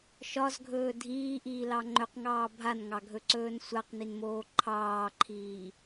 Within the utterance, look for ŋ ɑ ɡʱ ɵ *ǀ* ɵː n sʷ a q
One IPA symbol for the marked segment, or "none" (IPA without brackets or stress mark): ǀ